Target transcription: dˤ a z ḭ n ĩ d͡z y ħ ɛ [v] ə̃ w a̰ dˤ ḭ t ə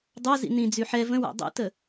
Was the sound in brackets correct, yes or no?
yes